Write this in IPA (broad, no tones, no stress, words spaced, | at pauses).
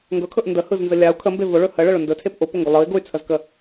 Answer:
ŋɡɵkʰɵʔ ndəhɯznzə lʲau̯ kʰəmbe vʊɭɵ həɭəɭʊ ndɵtʰep ʔʊpʊŋɡʊ lˠɯi̯ ɡʊy̯t͡sʰəzkə